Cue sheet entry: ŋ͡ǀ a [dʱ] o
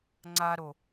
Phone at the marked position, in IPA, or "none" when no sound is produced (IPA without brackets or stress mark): ɾ